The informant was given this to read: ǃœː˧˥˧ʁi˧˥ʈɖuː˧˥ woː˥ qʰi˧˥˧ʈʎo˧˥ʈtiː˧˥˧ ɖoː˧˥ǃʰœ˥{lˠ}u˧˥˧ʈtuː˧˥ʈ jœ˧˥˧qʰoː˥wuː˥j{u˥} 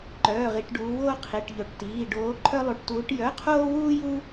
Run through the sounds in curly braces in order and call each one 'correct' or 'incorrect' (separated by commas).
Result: correct, correct